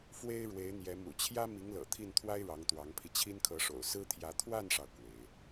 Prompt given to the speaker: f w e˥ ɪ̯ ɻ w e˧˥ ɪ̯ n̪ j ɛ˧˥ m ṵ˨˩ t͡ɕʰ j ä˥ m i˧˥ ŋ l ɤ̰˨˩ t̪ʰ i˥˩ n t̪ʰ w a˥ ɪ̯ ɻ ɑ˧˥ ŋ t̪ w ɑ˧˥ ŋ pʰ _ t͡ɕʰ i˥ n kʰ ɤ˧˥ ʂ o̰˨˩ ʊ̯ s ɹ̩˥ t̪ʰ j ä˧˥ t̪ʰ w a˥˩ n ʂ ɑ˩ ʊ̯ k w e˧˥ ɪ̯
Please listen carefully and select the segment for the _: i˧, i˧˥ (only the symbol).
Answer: i˧